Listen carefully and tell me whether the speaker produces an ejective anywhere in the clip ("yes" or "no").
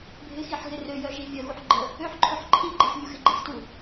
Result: no